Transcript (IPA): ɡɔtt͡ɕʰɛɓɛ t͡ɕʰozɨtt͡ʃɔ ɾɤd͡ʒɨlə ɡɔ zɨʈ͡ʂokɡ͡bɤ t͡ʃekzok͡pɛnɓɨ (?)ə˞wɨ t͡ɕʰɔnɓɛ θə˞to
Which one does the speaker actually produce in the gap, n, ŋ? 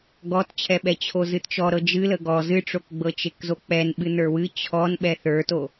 n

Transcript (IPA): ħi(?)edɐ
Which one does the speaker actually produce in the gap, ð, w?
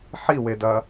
w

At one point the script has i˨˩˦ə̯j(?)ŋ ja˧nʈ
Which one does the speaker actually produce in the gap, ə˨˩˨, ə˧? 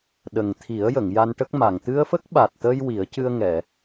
ə˨˩˨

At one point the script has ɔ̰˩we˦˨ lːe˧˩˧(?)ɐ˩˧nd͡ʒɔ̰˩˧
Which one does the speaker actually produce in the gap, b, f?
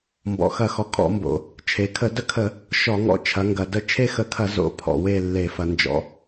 f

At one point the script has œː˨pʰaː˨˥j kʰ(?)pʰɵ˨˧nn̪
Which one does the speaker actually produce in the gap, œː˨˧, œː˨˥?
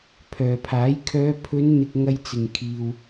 œː˨˧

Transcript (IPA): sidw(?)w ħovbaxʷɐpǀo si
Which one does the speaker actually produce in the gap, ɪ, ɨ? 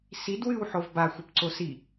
ɨ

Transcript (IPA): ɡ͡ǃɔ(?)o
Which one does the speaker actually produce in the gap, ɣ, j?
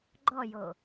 j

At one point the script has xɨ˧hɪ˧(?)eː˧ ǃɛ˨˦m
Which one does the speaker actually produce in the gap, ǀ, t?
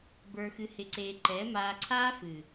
ǀ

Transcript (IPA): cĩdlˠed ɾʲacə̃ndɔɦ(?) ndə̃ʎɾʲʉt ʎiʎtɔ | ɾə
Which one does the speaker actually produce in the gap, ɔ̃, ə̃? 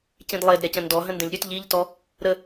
ə̃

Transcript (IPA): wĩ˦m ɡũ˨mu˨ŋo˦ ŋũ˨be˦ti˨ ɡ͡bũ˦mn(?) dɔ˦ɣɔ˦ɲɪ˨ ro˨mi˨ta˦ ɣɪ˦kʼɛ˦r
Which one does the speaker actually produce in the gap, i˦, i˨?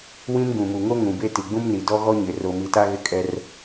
i˨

